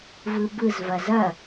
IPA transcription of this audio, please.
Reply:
v ɯ b ɯ z v ɐ z ɐ

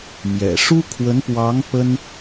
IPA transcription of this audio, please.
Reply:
m j ɛ̰˨˩ ʂ u˥ kʰ w ə˧˥ n p w ɑ˧˥ ŋ p ə˥ n

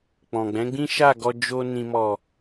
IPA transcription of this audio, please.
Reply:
k͡p ɔ̃˨ ɡ͡b ɛ̃˨˦ ɡ͡b ĩ˦ ʃ a˦˨ ɡ ɔ˧ d͡ʒ o˧ n ĩ˨ m ɔ˨

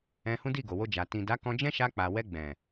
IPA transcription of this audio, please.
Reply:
ɛ̃˧ h ũ˦ d i˦˨ ɡ o˨ w o˧ d͡ʒ a˨ t ĩ˨ d a˨˦ k ɔ̃˧ d͡ʒ ɛ̃˦ ʃ a˧ k͡p a˨ w ɛ˧ ɡ͡b ɛ̃˨

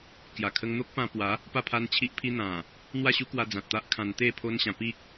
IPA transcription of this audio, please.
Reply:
k j a˨˩ kʰ ə˧ ŋ n̪ o˦ k̚ p ã˧ p w a˨˦ | p a˥˧ pʰ a˦ n t͡ɕʰ i˦ ʔ pʰ i˦ n̪ ã˨˩ | n̪ w a˥˧ ɕ u˦ k w a˧ d͡z ã˨ t̚ t̪ a˦ ʔ kʰ ã˧ n t̪ e˥˧ pʰ o˦ n ɕ ã˧ p i˦ k̚

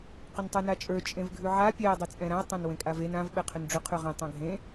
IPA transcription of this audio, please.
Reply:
q ʏ n tˤ ə˞ n a t͡ʃʼ ə˞ t͡ʃʼ ẽ v ɡʱ ʉ ʕ a pʲ ɛ ɐ̯ dˤ e t͡sʼ ɛ̃ ɾ ã ɐ̯ tˤ ã n w ẽ kʼ a v e n ã v ɓ ɛ qʰ ʏ n ɖ͡ʐ ʏ qʰ ʉ ʁ ɛ̃ tˤ ã ɡʱ ẽ

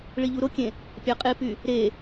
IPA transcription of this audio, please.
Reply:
ɭ i ʎ u ɾ o kʲ ẽ | pʲ ɑ qʼ e p y | ɾ e

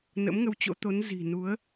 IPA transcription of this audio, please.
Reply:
n ə̰˧˥ m ŋ ə˧ w t͡ɕ o̰˧˥ t̪ o˨˦ n z i̤˨˩ n u˨˦ ə̯

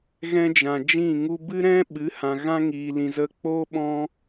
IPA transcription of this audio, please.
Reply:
ɣ ɛ̃˦ d͡ʒ ã˨ d͡ʒ ĩ˦˨ ŋ u˦ b ɨ˦ ɾ ɛ̃˦ ɓ ɨ˨˦ h ã˨ ɣ ã˦ ŋ iː˨ l ĩ˨ z ə˧ k͡p oː˦ ɓ ɔ̃˦

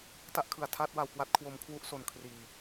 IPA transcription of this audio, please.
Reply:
t a˥˩ ʔ kʰ ɯ˨˩ a̯ tʰ aː˥˩ t̚ w a˧ w k w a˦˥ t̚ kʰ w o˧ m kʰ w u˥˩ ʔ s o˨˩ n kʰ r iː˨˩

